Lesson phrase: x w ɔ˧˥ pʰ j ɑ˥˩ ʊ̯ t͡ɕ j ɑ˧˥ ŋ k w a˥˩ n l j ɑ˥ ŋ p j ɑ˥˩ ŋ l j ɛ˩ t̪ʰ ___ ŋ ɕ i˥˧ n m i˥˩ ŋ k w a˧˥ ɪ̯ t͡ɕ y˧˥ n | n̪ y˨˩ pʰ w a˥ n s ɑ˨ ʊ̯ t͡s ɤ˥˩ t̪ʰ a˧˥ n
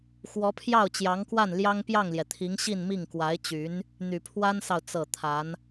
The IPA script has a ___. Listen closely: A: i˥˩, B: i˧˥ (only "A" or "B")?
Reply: B